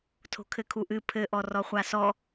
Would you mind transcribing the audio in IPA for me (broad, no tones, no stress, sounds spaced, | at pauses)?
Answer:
tʰ o̤ kʰ ɘ kʰ u ʔ ɨ pʰ ɘ ʔ ɔ r ɔ χʷ a s ɔ